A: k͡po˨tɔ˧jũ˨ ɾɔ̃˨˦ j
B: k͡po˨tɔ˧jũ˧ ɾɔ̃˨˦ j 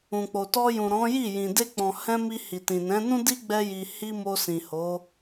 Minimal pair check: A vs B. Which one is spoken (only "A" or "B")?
A